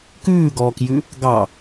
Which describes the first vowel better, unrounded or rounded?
rounded